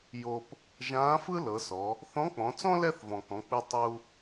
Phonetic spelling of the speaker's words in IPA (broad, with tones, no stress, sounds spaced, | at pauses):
j o˧ p | ʒ ãː˧˥ f ɯ˥ l ɤ˩˧ s ɔ˩˧ | θ ɔ̃˧˥ k͡p ɔ̃˩˧ t͡s ɔ̃˥ l ɛ˥ θ v ɔ̃˩ k ɔ̃˩˧ k͡p ɯ˧ tˤ u˧